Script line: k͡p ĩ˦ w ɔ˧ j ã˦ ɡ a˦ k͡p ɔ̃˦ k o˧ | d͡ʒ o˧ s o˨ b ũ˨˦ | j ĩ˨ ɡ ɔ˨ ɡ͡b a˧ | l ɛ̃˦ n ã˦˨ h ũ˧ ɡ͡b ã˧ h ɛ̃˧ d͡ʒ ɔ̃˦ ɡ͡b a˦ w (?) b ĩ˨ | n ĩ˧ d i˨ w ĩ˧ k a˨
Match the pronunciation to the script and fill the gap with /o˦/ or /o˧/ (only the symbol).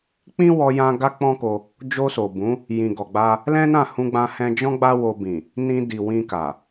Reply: o˧